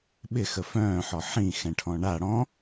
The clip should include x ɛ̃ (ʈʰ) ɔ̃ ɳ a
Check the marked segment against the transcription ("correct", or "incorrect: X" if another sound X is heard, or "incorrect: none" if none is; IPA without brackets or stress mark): correct